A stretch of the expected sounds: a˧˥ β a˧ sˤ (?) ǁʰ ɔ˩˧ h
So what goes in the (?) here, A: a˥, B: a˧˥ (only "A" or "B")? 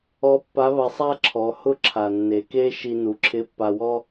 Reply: A